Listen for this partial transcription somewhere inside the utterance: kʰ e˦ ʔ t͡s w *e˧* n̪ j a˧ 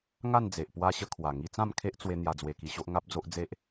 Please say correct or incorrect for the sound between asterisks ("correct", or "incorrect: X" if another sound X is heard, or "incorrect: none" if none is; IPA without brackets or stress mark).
correct